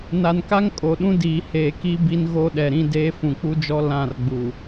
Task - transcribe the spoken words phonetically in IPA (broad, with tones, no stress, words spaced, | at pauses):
na˨nka˦ŋ kʼo˨ɗũ˦ diː˨heː˨ ki˦ bi˦n ɣo˦ɗɛ˨ɾĩ˦ de˦ fũ˨k͡pu˦d͡ʒɔ˦ lã˦˨rɡ͡bu˨